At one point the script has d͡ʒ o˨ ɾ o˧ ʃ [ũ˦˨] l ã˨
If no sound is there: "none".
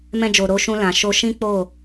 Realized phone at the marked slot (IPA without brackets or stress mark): ũ˧